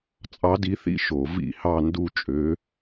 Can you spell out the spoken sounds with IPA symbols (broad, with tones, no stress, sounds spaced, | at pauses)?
t͡sʼ ɑ˧˥ d i˧˥ θ ḭ˥˧ ʃ o˧˩˧ v ḭ˥˧ h ɑ˥˧ n d u˥˧ t͡ʃʼ ø˧˥